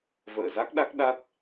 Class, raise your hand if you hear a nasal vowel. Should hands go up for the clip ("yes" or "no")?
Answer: no